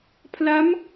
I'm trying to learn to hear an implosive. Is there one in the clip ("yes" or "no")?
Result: no